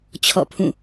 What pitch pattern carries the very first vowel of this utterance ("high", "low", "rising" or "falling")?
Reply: falling